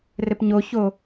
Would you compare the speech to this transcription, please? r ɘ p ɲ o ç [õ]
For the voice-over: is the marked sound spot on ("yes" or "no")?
no